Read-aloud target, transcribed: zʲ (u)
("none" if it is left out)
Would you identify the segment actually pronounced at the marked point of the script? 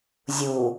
u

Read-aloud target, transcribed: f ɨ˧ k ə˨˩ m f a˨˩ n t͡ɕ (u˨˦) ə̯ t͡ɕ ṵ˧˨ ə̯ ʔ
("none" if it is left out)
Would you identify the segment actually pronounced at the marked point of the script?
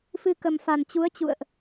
u˨˦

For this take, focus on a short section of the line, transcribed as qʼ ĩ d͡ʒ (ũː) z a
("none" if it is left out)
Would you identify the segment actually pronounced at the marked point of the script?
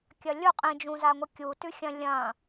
ũ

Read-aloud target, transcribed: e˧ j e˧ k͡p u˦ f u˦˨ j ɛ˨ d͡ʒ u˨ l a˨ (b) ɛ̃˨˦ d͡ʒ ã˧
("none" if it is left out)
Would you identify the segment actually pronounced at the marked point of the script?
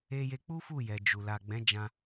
ɡ͡b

